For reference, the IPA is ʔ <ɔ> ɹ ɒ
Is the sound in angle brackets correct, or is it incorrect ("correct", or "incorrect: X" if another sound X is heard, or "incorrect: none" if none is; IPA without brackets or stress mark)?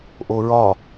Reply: incorrect: o